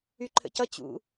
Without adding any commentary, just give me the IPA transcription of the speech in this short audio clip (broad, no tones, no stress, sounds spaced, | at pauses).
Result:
y ǃʰ ə̰ c ʌ t͡ɕ ṵ